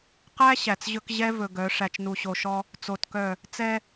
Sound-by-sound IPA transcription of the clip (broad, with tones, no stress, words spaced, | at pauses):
qæ˦ ɕæ˨t͡sʑɵ˦k ʑɛ˦ vɵ˨ɡœ˨˦ ʂæ˨t͡ʃnu˨ɕo˨ʃɔ˦ | t͡so˨tkœ˦˨ | t͡sɛ˦